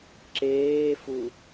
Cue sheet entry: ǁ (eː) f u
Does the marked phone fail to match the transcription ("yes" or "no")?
no